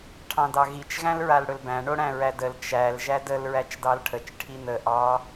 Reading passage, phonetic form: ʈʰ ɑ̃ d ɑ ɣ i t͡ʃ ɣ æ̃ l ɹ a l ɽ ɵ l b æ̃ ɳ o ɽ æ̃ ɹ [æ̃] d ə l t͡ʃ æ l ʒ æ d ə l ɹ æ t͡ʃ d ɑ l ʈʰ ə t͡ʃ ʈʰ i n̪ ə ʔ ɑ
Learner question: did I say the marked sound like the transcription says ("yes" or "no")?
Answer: no